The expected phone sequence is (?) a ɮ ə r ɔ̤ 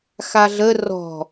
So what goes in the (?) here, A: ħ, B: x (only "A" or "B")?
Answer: B